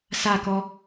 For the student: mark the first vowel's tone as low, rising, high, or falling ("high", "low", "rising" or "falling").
falling